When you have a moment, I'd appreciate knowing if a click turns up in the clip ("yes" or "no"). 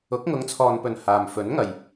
no